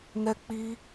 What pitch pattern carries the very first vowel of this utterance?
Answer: high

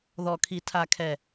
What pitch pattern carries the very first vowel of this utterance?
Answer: low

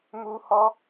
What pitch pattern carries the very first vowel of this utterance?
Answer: high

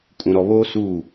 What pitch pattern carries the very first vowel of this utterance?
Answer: low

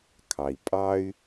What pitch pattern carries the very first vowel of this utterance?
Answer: low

